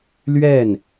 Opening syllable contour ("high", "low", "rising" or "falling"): falling